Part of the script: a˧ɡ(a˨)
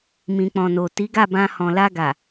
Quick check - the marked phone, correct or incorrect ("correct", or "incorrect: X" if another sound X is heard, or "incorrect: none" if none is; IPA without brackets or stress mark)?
correct